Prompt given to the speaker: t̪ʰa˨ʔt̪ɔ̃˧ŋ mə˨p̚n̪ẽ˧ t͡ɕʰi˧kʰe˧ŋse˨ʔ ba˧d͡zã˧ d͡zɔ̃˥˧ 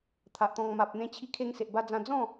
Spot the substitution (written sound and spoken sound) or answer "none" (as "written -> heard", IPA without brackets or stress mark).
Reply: ə˨ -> a˨